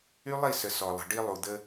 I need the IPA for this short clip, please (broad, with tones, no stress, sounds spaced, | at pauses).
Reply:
y˦ lˠ i˦˨ s ə˨ s ɔ˨ lˠ ə̤˨ ɖ i˦ lˠ u˨ d̪ ə˦